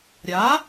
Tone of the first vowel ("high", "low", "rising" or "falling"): rising